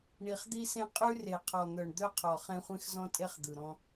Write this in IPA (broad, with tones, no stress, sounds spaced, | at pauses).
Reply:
ɳ i˨ χ d̪ i˦ s ẽ˦ qʼ ʉ˦ r e˨ qʰ ɔ˨ n̪ œ˨ ɳ d̪ œ˦ qʰ ɔ˨ χ ẽ˦ χʷ ẽ˦ x z ɔ̃˦ tʼ e˦ χ d̪ ɯ˨ ɾ ɔ̃˦